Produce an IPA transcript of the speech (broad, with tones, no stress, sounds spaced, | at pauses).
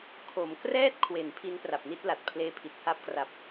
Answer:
kʰ o˩˦ m k r ɛː˥˩ t̚ kʰ w e˩˦ n pʰ i˦˥ n p r a˨˩ p̚ n i˥˩ t̚ l a˨˩ t̚ pʰ l eː˧ pʰ i˨˩ t̚ h a˦˥ p̚ k r a˨˩ p̚